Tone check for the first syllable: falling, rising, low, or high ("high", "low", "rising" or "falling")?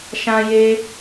high